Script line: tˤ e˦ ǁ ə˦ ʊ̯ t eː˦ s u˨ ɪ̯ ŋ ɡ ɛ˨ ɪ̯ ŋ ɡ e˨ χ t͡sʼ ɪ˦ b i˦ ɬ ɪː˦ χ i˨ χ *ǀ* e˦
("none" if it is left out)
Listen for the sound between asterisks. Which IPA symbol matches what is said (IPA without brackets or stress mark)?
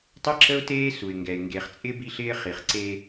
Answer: ǀ